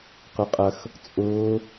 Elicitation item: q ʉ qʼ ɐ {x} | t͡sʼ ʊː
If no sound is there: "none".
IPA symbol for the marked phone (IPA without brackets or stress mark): x